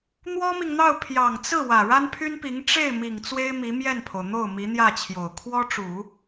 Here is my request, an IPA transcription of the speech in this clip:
n̪ w ɔ˥ m i˨ ŋ n̪ ɑ˥˩ ʊ̯ pʰ j ɑ˨˩ ŋ t͡s ɹ̩˥˩ w ä˨˩ ɻ a˥ n pʰ y˥ n p i˧˥ ŋ ʈ͡ʂ e˥˩ ɪ̯ m i˨˩ ŋ t͡s w e˥ ɪ̯ m i˧˥ m j ɛ˥˩ n pʰ o˩ ʊ̯ n̪ o˥˩ ʊ̯ m i˧˥ n̪ j ä˥˩ t͡ɕʰ j o˨˩ ʊ̯ kʰ w ɔ˥ ʈ͡ʂ u˨˩˦

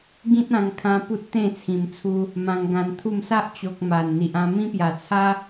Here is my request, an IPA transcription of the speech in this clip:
ɡ ĩ˦ t̚ ã˧ ŋ kʰ ã˧ p u˦ t̚ t̪ ẽ˥˧ t͡sʰ ĩ˨˩ m t͡sʰ u˧ | m ã˧ ŋ ɡ ã˧ n t̪ʰ u˥˧ m s a˦ ʔ t͡ɕ o˨ k̚ m a˨˩ n n̪ i˨ ʔ ã˧ m ĩ˦ p j a˨˩ t͡sʰ a˦

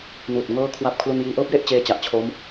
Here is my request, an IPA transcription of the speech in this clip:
n uː˨˩ t̚ ŋ ɤː˥˩ kʰ w a˥˩ p̚ kʰ l u˧ n j iː˧ ʔ ɤː˥˩ p̚ j e˥˩ ʔ t͡ɕ eː˦˥ t͡ɕ a˨˩ ʔ t͡ɕʰ o˦˥ m

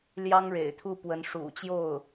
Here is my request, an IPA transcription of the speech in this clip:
l j ɑ˥ ŋ ɻ ḛ˨˩ ɪ̯ t̪ʰ u˥˩ p w ə˧˥ n ʂ ṵ˨˩ t͡ɕ j o˥˩ ʊ̯

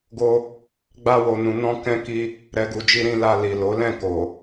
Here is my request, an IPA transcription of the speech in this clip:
ɡ o˧ | ɡ͡b a˧ w o˨ n ũ˨ n ɔ̃˧ k ɛ̃˦ k i˦ | ɾ ɛ˨ ɡ u˨ d͡ʒ i˧ ɾ ĩ˧ l a˧ l i˨ l o˨˦ l ɛ̃˦˨ k o˨

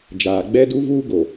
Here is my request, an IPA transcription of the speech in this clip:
d͡ʒ aː˨ ɡ͡b ɛ˦ d u˦ v uː˦ ɡ o˨

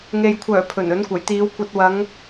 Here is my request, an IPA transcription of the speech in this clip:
ŋ e˨ j kʷʰ œː˨˩ pʰ ɵ˨˩ n ɵ˨˥ n kʷ ɐ˨˩ j t̪ iː˨˧ w kʷ ɐ˧ t̚ w ɐ˨˧ ŋ

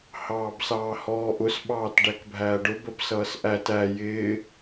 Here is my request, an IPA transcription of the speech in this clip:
h ɑː b s ɑː h ɔː ʔ ʊ s ɓ ɑː t ɖ æ k bʱ æː ɖ ʊ b ə b s ʌː s ʔ æ t æ j ɪː

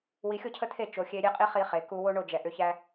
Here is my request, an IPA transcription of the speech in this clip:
w i˧ xʲ o˦ cʰ ə˦ t̪ʰ e˦˨ t͡ʃ o˨ xʲ e˧ ɾʲ e˦ qʼ i˦ χ i˧ χ e˨ k u˧ w o˦ ɳ o˦˨ d͡ʒ ɛ˨ ʔ ʏ˧ ç æ˦

